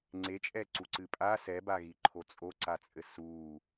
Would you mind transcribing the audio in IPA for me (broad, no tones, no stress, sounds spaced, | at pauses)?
ŋ͡ǀ e t͡ʃʼ ɛ ǀ u ǀ ɨ pʼ a s ɛ b a ɣ i ǃʰ o t͡sʼ o ǀ a t͡sʼ ɘ s u